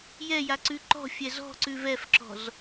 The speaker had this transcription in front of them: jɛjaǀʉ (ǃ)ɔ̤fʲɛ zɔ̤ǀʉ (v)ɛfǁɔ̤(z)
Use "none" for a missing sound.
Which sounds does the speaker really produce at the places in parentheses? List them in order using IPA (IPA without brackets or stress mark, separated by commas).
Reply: ǃ, v, z